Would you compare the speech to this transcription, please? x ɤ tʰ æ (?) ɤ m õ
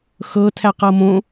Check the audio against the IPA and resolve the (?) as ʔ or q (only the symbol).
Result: q